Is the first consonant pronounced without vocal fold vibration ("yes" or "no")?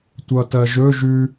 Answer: yes